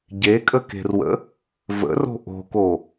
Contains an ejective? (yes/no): yes